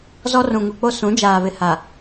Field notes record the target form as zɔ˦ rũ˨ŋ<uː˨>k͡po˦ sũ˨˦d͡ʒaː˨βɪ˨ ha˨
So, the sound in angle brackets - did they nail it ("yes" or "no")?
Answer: no